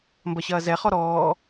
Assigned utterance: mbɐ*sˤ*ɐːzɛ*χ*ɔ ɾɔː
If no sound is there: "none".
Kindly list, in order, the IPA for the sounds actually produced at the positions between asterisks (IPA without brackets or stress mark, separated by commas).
ɕ, χ